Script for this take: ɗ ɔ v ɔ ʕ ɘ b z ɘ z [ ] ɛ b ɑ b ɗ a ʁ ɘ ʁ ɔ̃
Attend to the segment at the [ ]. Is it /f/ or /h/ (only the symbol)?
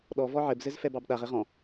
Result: f